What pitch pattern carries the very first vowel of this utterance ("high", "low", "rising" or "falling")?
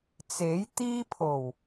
rising